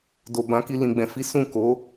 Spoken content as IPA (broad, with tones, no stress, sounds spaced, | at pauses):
d o˨ b ã˨˦ k i˧ l ĩ˨ ɡ͡b ɛ̃˨ f i˨˦ s ũ˦˨ k o˨˦